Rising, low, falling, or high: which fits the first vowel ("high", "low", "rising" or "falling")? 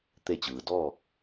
falling